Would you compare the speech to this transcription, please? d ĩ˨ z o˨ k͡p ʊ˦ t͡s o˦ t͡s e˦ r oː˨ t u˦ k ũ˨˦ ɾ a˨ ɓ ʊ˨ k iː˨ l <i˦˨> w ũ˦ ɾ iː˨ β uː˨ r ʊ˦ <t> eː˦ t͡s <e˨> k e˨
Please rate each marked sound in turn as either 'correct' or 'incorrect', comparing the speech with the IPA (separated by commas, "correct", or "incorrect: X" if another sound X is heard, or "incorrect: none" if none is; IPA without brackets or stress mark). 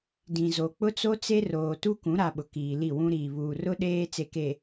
correct, incorrect: ɗ, correct